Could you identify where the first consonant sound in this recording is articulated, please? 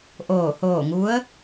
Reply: glottal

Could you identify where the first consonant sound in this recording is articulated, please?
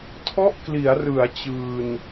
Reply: alveolar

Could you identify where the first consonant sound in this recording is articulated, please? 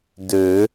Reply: alveolar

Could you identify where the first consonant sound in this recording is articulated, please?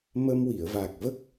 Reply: labial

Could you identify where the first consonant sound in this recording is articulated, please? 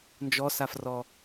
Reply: alveolar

